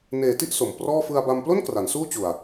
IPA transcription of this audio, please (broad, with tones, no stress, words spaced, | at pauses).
neː˨˩ti˥˩ʔ so˨˩mprɔː˥˩ fɯ˧a̯ba˧m plo˥˩n kra˩˦nsuː˥˩t͡ɕu˨˩a̯